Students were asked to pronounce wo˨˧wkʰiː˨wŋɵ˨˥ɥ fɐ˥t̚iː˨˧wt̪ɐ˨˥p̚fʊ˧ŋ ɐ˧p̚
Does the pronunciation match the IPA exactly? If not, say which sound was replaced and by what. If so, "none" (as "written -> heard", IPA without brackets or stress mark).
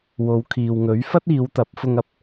none